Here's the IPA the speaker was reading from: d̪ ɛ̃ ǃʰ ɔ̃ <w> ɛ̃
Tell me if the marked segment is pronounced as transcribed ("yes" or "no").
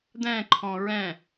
no